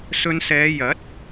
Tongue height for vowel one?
mid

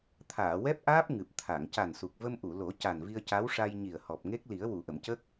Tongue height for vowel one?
low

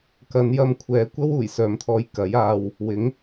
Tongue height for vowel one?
low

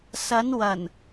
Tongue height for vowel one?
low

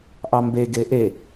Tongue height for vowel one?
low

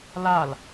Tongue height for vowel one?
low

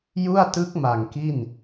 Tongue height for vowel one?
high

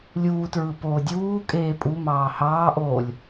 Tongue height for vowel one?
high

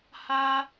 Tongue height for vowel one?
low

